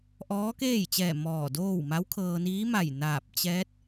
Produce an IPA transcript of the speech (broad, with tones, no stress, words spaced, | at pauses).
ʔɔː˧˥keː˥˨jt͡ɕɛː˧˩ mɔː˧˩doː˥˨w ma˧˥wkʰɤː˧niː˧˥ma˧˩j naː˧˩p̚t͡ɕɛː˧˥t̚